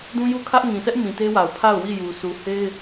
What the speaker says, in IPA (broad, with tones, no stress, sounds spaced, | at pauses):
d ũ˦ j u˦˨ kʰ ä˦ ʔ ŋ ĩ˨ s ɛ˦ ʔ m ĩ˨ t e˦ w a˨ ʊ̯ pʰ a˦˨ ʊ̯ w i˦˨ j u˨ s u˨ h e˦ ɪ̯